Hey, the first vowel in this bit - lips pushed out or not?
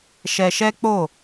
no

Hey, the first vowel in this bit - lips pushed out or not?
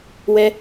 no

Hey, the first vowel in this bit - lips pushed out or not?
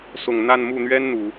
yes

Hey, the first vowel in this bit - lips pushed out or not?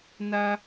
no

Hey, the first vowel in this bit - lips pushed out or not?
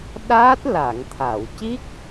no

